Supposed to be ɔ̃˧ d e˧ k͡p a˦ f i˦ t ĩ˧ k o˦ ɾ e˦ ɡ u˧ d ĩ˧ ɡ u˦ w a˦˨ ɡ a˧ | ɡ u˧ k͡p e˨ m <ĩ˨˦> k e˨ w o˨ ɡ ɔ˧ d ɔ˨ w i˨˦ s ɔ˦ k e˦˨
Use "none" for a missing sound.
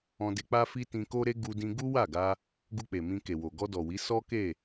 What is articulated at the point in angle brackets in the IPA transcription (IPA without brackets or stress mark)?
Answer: ĩ˧